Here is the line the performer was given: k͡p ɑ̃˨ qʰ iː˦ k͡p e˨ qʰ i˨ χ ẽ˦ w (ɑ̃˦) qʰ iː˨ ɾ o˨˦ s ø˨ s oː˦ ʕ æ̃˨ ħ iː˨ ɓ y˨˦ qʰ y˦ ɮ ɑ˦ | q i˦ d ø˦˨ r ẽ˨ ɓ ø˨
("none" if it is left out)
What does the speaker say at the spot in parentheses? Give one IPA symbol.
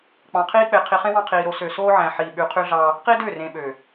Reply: ɑ̃˦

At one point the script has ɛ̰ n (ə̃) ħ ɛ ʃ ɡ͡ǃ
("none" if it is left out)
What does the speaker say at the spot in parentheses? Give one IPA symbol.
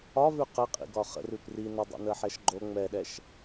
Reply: ə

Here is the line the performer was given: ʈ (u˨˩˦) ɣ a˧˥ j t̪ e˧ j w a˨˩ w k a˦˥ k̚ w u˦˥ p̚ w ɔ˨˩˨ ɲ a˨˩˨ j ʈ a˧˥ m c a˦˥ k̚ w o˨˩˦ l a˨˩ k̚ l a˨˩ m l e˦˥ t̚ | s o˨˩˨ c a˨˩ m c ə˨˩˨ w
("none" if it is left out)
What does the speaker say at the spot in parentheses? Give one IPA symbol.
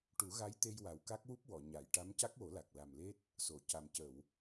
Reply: u˨˩˦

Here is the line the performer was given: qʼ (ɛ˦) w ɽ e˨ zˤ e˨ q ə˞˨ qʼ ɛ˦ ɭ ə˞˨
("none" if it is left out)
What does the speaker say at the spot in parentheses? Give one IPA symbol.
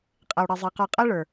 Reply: ɛ˨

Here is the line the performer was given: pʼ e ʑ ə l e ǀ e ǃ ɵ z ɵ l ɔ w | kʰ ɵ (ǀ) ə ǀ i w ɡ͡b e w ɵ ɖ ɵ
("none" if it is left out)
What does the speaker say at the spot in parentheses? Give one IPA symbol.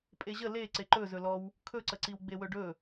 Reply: ǀ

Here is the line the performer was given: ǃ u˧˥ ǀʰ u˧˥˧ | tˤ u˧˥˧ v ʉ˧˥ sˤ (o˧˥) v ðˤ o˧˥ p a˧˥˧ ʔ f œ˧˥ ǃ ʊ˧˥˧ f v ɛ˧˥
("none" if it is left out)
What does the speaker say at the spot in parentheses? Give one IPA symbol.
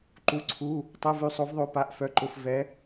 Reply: o˧˥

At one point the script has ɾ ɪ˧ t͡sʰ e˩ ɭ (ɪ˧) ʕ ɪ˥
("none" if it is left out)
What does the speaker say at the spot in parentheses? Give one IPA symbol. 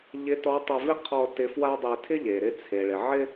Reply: ɪ˩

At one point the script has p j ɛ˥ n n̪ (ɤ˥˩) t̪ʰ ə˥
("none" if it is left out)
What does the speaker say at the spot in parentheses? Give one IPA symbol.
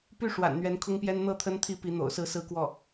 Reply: ɤ˥˩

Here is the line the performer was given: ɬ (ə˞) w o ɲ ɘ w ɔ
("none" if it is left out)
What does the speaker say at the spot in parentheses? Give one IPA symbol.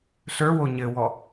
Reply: ə˞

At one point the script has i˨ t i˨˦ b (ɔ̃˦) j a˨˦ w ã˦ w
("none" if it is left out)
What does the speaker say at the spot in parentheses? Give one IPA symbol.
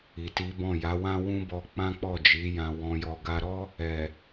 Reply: ɔ̃˦˨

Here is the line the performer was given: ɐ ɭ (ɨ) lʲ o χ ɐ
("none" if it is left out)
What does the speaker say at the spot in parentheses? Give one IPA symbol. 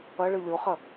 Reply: ɨ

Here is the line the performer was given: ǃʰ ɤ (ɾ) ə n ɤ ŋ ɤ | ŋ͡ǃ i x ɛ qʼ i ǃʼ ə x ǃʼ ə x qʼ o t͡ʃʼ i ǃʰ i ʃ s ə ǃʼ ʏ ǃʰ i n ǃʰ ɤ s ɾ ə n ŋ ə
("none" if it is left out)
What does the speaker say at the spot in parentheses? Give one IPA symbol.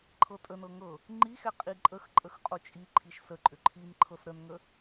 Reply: tʼ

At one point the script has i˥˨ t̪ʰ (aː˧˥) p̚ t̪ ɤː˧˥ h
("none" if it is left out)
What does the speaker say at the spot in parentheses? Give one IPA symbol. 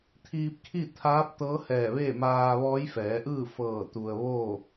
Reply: aː˧˥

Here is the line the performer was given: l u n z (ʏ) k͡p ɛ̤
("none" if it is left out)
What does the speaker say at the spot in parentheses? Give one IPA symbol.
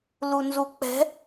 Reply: u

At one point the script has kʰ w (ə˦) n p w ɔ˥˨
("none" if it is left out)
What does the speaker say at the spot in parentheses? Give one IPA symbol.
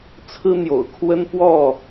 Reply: ə˦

